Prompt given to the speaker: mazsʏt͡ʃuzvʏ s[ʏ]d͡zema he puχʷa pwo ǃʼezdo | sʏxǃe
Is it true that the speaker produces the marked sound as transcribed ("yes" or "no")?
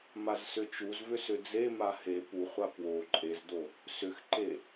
yes